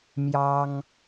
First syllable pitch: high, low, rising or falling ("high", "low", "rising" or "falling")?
high